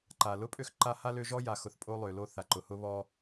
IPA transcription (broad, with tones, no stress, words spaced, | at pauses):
ǃa˩ lʊ˥pʼø˦x ǃa˦ha˥lø˦ ʒɔ˥ja˨xʊ˨θ pʼo˦lˠø˩lo˦ θa˩ǃʊ˩hʊ˥ βɔ˦